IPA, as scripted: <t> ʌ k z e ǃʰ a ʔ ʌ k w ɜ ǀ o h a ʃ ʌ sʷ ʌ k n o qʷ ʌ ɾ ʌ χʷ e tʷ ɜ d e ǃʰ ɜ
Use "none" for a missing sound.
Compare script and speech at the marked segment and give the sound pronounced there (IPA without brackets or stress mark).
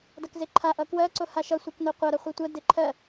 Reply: d